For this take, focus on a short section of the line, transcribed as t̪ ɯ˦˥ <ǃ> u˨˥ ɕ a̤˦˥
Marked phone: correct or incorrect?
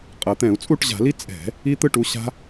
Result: incorrect